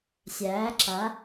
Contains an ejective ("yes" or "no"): no